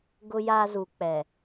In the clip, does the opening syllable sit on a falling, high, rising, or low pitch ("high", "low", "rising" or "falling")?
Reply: low